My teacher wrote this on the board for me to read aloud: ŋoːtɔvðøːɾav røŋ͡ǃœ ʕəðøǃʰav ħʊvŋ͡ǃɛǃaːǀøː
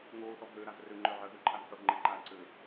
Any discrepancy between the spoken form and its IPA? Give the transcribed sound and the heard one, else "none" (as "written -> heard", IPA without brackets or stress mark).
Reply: none